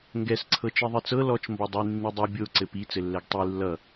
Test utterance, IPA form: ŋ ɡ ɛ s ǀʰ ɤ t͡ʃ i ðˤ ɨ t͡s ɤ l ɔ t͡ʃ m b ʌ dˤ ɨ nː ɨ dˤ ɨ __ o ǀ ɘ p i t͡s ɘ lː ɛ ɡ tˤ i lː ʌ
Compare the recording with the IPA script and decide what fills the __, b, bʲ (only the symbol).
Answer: bʲ